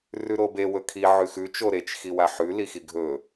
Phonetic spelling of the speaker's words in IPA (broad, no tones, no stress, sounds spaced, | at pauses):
r ʉ ɾ o b e w ɵ kʰ i ʕ ʉ x ʉ t͡ʃ o ɾ e t͡ʃ x i w a ħ ʉ l i x i ɡʱ ɵ